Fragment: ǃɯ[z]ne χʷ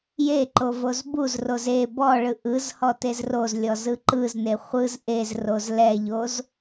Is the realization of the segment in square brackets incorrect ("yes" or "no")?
no